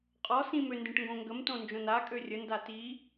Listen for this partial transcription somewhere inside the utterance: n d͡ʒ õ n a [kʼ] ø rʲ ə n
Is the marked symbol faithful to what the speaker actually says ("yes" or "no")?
yes